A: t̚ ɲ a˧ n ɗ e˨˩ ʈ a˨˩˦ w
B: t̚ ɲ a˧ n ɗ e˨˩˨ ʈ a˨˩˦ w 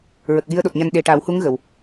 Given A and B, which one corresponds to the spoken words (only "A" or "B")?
A